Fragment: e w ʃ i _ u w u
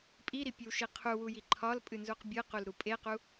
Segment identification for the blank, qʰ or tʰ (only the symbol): qʰ